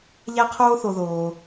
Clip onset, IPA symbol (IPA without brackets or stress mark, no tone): ʎ